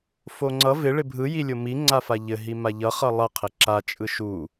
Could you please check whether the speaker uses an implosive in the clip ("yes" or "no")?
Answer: no